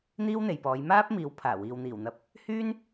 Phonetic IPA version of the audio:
n̪ iː˥ w n̪ e˨ j p ɔː˨˧ j m aː˥ p̚ m iː˨˧ w pʰ aː˨˩ w iː˨ w n̪ iː˨˩ w n̪ ɐ˧ p̚ | h yː˥ n

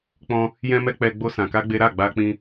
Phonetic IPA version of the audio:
k͡p ɔ̃˧ | j ɛ̃˧ m ɛ˧ k͡p ɛ˧ ɡ͡b o˦ s ã˧ k a˦ ɡ͡b e˦ ɾ a˦˨ ɡ͡b a˧ k͡p ĩ˧

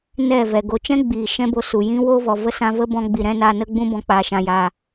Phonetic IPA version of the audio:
n ɛ˦˨ v ɛ˨ ɡ o˧ t͡ʃ ɛ̃˦ ɡ͡b iː˨ ʃ ɛ̃˦ b o˧ s u˨ j ĩ˦ w o˦ v ɔ˨ v ə˦ s ã˧ v ə˦ b ɔ̃˧ ɡ͡b i˨ ɾ ɛ̃˦ n a˧ n ə˦ ɡ͡b ũ˦ b ɔ̃˧ k͡p aː˨ ʃ ã˨ j aː˨

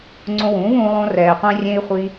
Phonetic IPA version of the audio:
ŋ͡ǀ õ˧ w ũː˨˦ v ũː˧ lˠ õ˧ r ɛː˨ qʷ ẽ˧ rʲ ẽ˧ i̯ χʷ i˧

